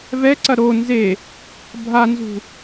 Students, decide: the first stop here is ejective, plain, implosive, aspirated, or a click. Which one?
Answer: click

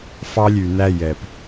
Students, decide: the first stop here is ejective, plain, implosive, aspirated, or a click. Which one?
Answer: plain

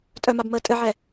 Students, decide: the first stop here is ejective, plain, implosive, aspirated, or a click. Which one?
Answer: ejective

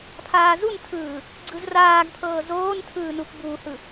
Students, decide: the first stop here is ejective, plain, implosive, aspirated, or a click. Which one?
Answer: aspirated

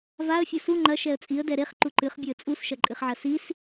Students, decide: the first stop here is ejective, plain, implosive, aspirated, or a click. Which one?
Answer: click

